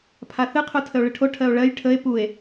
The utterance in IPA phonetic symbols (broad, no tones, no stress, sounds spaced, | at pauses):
pʰ a θ ɨ qʰ u tʰ ə o̯ ɭ ɨ ʈʰ o ʈʰ ɜ o̯ ɭ ɜ j ʈʰ ə e̯ p u e̯